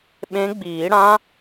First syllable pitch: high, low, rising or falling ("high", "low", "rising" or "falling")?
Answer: rising